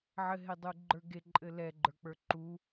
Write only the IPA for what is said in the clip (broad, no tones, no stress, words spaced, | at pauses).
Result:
ʕɘɦedˤuɡ͡ǃə˞ ɡeǃʼɘ lɛɡ͡ǃə˞k͡pə˞ ǃu